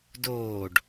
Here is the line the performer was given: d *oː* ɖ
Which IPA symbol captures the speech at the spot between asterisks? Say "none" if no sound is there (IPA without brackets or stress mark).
oː